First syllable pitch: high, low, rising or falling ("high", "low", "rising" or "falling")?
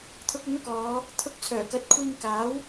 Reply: rising